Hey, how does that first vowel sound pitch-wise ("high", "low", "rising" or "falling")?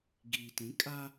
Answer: low